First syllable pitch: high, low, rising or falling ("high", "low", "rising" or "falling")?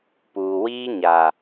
low